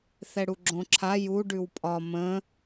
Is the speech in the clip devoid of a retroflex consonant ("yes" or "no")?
no